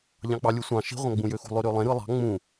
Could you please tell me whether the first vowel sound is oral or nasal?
nasal